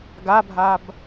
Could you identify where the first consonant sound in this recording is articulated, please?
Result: velar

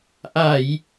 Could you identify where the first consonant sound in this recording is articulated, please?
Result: glottal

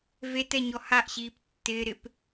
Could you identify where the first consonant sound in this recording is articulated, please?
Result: labial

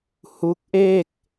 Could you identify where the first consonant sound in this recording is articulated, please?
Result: glottal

